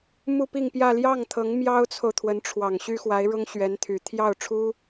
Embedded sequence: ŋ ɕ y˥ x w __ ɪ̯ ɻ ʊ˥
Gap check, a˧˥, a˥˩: a˧˥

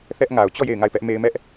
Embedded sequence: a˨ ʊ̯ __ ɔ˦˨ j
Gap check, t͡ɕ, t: t͡ɕ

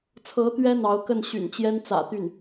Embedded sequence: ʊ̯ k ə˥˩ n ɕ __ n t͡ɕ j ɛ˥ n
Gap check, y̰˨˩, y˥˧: y̰˨˩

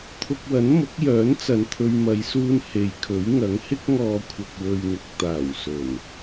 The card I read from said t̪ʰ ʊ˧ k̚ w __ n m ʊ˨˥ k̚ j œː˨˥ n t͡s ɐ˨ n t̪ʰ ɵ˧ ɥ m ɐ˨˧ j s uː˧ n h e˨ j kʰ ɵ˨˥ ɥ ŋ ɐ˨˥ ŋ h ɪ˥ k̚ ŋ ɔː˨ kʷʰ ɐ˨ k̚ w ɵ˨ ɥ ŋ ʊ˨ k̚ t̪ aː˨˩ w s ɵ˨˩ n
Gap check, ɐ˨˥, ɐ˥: ɐ˨˥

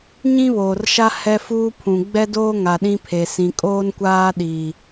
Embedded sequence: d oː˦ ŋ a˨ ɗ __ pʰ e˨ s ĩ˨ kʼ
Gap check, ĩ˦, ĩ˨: ĩ˦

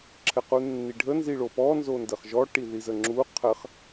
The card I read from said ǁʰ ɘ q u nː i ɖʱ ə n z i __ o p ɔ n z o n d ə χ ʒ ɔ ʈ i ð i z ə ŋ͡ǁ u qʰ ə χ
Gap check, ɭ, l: ɭ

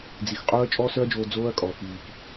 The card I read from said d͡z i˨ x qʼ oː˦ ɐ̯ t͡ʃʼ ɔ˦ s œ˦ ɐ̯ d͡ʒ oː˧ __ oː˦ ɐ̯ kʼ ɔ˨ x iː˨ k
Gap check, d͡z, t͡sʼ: d͡z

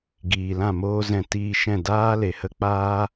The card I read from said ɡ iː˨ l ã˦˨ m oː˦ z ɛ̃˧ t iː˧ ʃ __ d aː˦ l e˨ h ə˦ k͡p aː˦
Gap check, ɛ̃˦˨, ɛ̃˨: ɛ̃˦˨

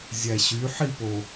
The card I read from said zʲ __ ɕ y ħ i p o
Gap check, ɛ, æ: æ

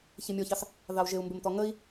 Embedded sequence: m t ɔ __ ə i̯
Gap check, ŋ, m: ŋ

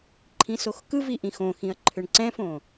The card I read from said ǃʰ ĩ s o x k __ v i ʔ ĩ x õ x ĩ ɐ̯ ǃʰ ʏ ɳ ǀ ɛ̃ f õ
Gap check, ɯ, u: ɯ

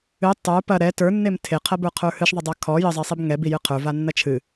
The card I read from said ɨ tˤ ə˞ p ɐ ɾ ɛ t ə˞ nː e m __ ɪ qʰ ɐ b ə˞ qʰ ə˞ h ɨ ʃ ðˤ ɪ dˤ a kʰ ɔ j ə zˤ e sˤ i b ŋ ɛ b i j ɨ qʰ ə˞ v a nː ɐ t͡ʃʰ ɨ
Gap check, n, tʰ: tʰ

